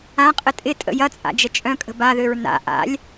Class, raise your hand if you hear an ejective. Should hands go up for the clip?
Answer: yes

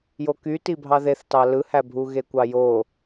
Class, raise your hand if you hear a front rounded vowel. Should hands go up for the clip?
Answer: yes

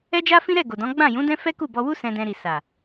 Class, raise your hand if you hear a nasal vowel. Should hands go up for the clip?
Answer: yes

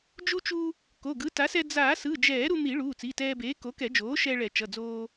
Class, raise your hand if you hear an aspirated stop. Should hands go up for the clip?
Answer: no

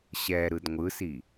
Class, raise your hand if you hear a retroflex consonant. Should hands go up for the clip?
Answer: no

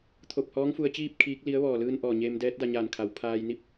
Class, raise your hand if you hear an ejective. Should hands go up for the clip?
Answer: no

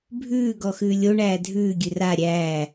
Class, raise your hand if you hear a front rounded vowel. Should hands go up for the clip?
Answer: no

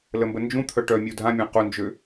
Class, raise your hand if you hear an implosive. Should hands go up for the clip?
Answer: no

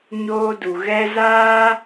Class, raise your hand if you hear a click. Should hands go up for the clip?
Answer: no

